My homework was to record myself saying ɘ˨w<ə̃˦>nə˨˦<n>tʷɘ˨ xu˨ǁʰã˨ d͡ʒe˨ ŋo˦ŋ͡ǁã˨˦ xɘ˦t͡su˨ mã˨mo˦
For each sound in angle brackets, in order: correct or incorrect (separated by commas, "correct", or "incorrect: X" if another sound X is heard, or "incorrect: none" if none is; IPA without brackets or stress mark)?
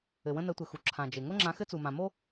correct, incorrect: none